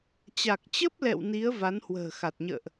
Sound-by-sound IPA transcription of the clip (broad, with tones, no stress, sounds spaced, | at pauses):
t͡ɕ a˨˩ k̚ t͡ɕ ə˦˥ p̚ l ɛ̰˧˨ w n i˨˦ ə̯ v a˨˦ n h w ə̤ː˨˩ x a˨˩ t̚ ɲ ə̰ː˧˨ ʔ